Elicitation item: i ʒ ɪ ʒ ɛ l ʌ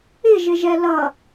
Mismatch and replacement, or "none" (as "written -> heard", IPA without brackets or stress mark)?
i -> ɪ